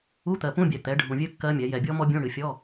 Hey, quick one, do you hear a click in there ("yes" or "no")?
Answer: no